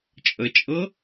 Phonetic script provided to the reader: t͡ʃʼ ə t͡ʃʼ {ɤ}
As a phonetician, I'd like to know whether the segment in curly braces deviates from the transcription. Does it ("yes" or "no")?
no